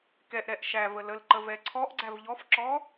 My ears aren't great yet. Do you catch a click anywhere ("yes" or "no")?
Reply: yes